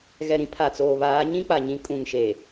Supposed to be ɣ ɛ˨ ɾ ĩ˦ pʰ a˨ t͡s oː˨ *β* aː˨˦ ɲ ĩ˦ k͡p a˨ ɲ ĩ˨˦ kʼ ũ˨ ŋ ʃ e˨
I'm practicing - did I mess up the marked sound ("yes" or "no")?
no